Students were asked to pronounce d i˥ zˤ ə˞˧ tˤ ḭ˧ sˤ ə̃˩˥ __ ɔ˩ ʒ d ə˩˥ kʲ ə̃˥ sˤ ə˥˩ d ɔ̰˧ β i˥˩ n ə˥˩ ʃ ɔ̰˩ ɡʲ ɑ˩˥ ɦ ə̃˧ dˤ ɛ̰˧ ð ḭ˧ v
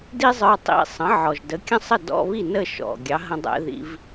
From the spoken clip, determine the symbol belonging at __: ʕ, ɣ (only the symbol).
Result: ʕ